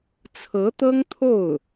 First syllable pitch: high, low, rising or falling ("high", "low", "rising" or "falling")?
rising